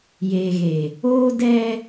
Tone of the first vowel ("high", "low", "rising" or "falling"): low